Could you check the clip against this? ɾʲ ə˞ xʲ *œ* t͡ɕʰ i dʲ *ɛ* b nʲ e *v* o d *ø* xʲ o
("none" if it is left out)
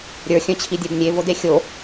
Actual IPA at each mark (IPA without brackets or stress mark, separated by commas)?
œ̃, œ, v, e